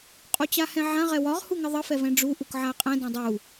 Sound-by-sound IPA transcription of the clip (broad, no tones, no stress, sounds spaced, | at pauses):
qʼ u t͡ɕ a h ɛ̃ ʕ ã ʁ ɛ w ɒ ʁ h u ŋ ə ðˤ ə f ɛ v ɛ̃ ɖ͡ʐ u ʔ u k ʕ a ə̯ qʼ ɛ̃ d ɛ̃ dˤ u